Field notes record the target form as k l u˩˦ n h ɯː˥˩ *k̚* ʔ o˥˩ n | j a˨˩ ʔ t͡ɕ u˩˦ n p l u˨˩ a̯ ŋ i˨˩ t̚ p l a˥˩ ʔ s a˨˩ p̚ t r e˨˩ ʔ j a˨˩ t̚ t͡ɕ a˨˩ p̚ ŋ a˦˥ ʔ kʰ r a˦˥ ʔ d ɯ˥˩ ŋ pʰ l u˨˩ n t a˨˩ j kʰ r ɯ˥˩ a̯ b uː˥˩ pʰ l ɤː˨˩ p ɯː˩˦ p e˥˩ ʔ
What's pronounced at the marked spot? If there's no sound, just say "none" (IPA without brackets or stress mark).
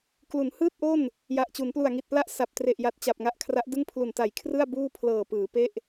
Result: t̚